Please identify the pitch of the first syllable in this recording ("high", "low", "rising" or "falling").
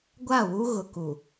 falling